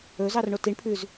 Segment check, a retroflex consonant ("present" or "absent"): present